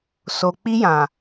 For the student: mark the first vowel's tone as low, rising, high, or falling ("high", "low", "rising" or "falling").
low